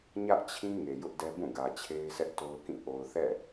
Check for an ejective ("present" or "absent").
absent